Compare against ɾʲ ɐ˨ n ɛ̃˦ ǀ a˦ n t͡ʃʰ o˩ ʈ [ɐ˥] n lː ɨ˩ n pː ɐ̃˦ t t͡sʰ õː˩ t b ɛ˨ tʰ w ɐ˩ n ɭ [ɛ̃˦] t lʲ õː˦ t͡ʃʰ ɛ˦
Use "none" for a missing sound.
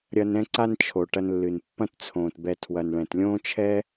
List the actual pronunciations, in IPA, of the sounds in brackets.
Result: ɐ˨, ɛ̃˩

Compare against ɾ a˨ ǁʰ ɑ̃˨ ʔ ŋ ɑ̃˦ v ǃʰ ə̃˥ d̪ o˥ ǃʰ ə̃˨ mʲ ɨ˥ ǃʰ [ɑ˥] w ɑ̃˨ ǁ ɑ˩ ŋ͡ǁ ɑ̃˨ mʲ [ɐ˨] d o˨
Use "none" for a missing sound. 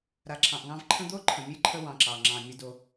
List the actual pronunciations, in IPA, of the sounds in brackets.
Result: ə˥, ə˨

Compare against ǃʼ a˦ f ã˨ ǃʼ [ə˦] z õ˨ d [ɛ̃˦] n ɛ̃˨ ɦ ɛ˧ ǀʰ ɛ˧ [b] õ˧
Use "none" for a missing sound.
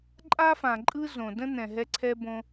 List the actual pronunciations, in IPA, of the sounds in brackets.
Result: ɯ˦, ə̃˦, b

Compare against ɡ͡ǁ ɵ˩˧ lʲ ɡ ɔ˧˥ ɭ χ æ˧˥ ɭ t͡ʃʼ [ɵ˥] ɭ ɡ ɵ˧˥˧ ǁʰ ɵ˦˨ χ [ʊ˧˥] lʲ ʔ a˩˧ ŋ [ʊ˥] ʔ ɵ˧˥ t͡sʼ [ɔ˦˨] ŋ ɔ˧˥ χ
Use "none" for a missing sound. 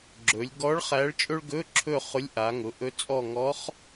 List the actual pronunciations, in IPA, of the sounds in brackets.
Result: ɵ˥, ʊ˧˥, ʊ˩˧, ɔ˦˨

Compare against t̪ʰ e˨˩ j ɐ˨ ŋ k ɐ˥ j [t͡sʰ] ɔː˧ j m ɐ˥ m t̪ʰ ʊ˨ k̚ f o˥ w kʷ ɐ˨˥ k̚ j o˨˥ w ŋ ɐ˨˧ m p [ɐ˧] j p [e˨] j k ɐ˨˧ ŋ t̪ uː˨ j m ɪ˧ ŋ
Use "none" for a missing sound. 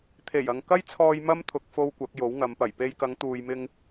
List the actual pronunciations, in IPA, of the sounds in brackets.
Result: t͡sʰ, ɐ˨˩, e˧

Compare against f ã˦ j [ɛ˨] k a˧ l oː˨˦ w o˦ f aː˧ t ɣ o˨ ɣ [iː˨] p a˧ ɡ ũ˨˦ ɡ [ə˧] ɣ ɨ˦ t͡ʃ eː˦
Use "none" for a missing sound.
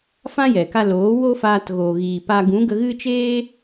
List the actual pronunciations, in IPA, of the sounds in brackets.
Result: ɛ˨, iː˨, ə˧

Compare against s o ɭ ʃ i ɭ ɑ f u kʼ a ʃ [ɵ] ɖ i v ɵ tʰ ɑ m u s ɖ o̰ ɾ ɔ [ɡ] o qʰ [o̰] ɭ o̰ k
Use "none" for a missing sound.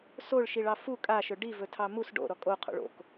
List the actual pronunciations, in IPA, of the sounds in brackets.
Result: ɵ, kʼ, o̰

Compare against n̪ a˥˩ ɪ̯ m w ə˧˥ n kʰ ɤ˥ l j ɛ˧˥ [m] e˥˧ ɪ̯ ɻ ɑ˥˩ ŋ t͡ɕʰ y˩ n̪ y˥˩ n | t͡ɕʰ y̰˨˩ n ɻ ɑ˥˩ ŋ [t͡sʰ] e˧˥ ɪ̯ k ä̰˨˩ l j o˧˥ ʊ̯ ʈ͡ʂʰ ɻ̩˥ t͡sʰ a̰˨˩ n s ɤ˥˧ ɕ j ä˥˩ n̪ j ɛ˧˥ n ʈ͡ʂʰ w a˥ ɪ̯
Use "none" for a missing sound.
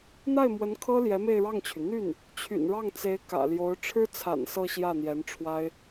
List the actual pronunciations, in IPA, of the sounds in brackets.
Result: m, t͡s

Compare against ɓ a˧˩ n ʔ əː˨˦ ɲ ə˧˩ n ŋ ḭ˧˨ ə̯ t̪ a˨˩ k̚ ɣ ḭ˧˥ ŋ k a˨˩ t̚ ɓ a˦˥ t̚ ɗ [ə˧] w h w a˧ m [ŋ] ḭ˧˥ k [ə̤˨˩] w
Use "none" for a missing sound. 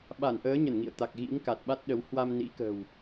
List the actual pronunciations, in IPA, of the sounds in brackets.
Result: ə˨˦, n, ə̤˨˩

